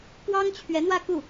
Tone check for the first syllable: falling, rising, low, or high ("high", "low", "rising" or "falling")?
high